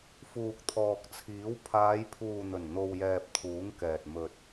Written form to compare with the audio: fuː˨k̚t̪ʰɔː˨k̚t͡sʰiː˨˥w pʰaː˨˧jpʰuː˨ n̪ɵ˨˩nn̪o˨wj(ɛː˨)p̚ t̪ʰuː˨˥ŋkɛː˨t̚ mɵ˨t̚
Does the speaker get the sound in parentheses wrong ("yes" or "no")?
no